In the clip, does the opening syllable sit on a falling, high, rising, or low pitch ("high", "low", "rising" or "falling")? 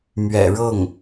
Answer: low